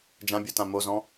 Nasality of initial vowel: nasal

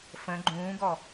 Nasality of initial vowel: nasal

